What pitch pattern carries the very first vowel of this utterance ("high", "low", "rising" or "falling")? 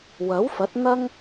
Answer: rising